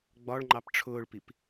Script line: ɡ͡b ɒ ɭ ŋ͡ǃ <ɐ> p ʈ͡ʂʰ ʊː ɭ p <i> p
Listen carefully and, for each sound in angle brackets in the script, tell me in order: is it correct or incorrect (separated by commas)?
incorrect, correct